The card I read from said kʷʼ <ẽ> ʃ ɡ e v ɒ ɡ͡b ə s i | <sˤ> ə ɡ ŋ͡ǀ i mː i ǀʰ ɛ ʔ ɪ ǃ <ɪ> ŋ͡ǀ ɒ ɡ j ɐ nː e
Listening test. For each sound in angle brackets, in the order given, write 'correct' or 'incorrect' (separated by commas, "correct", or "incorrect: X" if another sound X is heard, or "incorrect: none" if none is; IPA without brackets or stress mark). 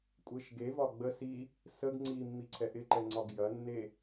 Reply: incorrect: e, incorrect: s, incorrect: ɛ